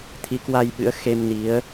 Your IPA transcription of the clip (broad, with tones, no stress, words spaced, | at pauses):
t̪ʰi˨˦ kwa˧jɓɨ̰˧˥ə̯ xe˧mni˨˦ə̯